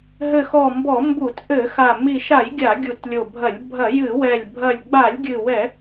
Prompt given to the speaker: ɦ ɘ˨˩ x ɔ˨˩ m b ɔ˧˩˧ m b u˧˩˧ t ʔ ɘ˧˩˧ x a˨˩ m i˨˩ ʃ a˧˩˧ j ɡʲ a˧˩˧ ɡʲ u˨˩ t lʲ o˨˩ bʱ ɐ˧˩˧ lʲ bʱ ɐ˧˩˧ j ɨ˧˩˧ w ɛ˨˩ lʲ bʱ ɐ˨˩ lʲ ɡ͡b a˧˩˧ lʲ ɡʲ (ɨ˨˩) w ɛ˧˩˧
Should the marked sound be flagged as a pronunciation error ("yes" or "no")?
no